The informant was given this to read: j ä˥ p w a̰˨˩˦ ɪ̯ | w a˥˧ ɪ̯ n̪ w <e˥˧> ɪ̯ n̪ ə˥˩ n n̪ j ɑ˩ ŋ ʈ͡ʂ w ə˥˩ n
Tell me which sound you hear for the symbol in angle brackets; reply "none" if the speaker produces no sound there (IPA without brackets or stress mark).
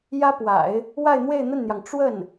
e˥˧